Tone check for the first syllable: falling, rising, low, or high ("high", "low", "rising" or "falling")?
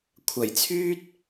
low